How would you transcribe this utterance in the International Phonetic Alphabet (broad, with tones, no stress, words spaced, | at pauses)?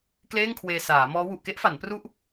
kleː˥˩ŋkʰweː˧saː˩˦mɔː˦˥ wu˨˩ʔke˦˥ʔfa˩˦n pru˥˩ʔ